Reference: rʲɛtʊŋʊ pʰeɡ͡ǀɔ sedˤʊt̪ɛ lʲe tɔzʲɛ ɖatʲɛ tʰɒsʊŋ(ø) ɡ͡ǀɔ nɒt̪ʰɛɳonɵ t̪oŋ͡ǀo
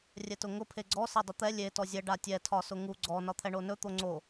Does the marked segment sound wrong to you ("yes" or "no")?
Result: yes